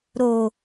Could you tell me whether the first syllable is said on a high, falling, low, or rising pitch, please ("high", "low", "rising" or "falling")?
low